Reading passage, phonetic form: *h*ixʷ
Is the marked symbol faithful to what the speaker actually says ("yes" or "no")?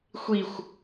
no